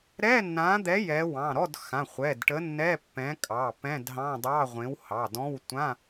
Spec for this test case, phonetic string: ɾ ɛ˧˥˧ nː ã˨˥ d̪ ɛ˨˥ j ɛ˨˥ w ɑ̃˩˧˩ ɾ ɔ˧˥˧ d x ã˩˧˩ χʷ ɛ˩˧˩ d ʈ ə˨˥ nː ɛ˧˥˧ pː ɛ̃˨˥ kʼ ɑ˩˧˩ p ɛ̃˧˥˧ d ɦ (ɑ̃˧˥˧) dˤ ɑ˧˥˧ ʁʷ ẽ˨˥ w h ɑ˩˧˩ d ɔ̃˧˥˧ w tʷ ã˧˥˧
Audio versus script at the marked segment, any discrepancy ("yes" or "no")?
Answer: no